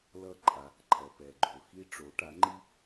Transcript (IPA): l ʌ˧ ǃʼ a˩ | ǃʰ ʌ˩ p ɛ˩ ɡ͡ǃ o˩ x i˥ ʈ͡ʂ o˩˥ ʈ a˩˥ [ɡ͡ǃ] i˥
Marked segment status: incorrect: ŋ͡ǃ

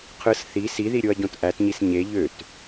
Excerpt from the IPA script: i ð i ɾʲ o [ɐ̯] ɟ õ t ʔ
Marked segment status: correct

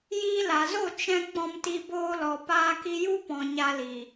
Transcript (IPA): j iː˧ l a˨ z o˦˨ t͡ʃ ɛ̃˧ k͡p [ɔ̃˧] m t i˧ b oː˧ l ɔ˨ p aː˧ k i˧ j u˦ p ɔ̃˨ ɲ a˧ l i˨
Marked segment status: correct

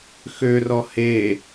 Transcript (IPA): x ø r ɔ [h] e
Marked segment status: correct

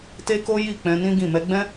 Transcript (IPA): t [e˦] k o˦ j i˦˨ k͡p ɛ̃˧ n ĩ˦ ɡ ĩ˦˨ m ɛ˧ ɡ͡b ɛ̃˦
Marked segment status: correct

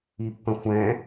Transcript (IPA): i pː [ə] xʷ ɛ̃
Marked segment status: incorrect: ə̃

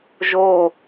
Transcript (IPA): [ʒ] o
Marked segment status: correct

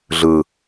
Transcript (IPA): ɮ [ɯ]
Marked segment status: correct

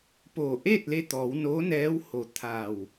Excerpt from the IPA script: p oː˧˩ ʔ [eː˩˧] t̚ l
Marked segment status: incorrect: eː˥˨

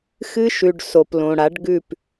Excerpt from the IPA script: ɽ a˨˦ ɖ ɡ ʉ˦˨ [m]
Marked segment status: incorrect: p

